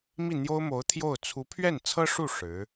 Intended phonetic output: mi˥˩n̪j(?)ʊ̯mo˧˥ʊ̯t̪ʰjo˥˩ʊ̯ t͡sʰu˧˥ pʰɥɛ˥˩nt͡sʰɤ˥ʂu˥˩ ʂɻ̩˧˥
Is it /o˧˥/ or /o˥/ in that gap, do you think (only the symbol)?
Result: o˥